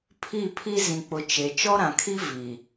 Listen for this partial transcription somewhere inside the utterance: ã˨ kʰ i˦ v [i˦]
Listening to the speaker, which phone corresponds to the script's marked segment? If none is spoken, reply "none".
i˨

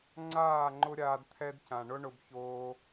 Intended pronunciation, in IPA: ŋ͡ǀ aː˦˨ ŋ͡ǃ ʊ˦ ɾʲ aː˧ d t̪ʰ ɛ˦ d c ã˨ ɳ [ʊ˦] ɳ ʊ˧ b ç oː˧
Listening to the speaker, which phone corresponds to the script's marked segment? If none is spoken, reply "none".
ʊ˦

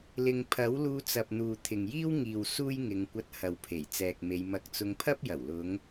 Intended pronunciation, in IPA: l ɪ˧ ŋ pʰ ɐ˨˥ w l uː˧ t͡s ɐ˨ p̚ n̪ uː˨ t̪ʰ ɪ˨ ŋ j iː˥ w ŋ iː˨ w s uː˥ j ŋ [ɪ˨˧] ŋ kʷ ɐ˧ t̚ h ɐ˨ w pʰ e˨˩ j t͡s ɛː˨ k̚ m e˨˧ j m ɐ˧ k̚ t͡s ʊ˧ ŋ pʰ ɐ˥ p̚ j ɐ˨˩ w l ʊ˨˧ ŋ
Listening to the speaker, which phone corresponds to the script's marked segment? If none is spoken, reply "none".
ɪ˨˧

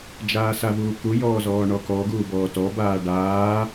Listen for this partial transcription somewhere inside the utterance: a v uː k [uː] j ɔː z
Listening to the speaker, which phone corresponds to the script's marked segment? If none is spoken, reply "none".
u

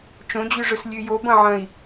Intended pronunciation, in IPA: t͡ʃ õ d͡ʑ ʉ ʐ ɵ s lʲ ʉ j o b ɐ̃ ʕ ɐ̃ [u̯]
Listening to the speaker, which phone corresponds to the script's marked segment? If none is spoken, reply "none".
i̯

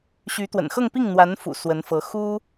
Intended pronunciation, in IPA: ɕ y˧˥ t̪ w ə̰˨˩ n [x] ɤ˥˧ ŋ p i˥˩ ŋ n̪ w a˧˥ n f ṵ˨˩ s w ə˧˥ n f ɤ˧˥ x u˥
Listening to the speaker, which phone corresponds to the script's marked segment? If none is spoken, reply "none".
x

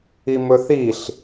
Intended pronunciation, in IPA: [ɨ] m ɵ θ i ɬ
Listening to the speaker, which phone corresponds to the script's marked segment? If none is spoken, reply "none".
i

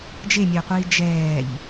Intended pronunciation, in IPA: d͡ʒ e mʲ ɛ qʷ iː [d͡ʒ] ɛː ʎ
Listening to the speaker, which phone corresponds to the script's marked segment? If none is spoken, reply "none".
d͡ʒ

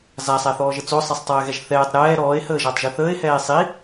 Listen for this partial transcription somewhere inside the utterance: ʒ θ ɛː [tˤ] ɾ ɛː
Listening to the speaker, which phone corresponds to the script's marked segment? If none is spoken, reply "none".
tˤ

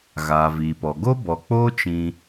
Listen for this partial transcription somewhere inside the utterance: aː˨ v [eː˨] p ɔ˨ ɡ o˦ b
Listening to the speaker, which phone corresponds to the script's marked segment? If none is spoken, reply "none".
iː˨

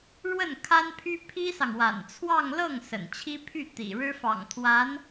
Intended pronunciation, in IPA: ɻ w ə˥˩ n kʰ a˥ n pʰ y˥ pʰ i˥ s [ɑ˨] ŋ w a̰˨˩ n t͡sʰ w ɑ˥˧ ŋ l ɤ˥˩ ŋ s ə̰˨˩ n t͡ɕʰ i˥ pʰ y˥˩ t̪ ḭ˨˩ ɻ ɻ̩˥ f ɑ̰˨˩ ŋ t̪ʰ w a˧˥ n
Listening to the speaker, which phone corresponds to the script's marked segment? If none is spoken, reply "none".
ɑ˨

